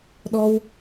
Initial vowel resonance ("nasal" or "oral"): oral